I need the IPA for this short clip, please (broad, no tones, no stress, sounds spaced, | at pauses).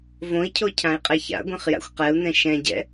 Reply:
v õ i̯ cʰ o cʰ ã i̯ qʼ ɛ ç a̰ ɡʷ ɛ̃ χ j a̰ xʷ q ɛ u̯ n ɛ̃ ʃ ɛ̃ ɟ ɛ̰